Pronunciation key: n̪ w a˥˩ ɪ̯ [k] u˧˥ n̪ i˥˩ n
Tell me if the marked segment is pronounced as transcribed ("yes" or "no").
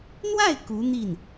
yes